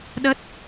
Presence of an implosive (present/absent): present